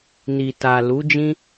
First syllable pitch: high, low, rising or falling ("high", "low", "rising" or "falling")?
low